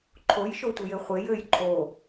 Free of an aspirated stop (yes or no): no